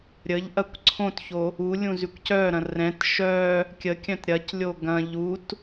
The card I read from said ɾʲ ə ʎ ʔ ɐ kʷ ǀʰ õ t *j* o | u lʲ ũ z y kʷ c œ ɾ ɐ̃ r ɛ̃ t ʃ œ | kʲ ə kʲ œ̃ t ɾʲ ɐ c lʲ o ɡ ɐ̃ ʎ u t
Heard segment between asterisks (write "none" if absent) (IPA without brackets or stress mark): ç